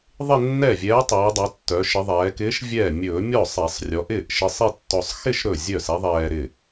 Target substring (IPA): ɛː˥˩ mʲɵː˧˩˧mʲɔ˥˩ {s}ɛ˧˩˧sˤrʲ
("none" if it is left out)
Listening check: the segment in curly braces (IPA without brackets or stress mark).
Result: sˤ